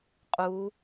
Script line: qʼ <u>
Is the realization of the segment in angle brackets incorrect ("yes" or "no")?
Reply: no